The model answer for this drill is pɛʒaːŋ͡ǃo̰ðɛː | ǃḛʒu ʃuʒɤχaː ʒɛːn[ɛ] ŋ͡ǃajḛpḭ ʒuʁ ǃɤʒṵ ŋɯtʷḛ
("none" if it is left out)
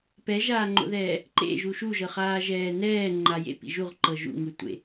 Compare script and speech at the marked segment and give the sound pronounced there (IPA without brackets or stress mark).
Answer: ɛː